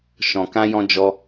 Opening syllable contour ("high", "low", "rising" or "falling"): low